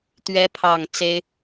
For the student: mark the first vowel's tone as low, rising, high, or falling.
rising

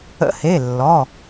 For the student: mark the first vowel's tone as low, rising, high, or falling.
rising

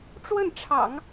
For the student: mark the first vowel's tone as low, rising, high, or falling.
falling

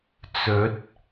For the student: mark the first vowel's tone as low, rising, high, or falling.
rising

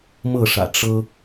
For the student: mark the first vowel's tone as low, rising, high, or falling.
falling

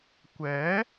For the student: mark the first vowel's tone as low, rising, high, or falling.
rising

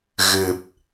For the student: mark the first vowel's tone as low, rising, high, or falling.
low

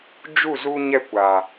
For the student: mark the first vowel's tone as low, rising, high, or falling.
falling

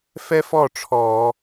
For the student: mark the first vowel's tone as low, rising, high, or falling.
high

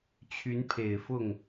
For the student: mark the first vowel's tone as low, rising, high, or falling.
rising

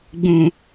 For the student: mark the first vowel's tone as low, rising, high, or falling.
low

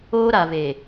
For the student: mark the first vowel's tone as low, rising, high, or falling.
high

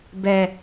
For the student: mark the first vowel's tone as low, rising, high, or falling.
low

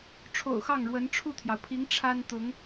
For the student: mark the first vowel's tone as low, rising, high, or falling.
low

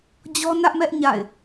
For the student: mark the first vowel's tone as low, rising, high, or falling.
high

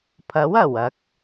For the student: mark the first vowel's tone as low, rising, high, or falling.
rising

